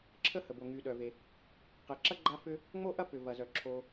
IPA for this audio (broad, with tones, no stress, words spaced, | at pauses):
ǁʰə˥hə˩bo˩ ŋy˩ ɗœ˩ve˩ | qɛ˩ ǁɐ˥ ɡ͡ǃa˥fʏ˥ | ŋ͡mo˥ʔɐ˥pʏ˩ vɐ˩zœ˩ ǁʰo˩